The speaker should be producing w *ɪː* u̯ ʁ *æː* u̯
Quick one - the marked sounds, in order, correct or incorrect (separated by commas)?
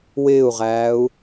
correct, correct